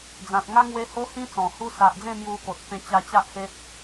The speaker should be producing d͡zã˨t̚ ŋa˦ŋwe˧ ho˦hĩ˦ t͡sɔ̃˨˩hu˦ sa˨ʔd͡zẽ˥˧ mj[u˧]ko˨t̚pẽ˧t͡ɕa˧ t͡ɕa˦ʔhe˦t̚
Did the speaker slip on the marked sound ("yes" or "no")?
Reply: no